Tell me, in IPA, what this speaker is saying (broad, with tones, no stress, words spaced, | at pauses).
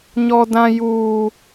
ɲɔ˦dã˦juː˦